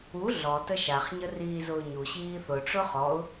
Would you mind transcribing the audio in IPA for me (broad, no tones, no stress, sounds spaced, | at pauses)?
u ɮ ɔ t ə ʃ a χ ɲ ə r iː z ʊː ɲ u ɕ iː θ ʊ ʈ͡ʂ ʊ χ ɔ ʊ̯